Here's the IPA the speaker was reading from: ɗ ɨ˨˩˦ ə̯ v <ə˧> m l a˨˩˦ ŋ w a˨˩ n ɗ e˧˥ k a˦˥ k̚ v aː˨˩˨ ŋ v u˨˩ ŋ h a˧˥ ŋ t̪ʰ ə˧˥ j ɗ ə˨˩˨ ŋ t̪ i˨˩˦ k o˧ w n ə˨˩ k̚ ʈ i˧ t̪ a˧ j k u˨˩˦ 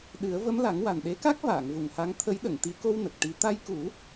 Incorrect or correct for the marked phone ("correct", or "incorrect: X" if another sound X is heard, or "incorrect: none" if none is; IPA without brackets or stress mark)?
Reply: incorrect: ə˧˥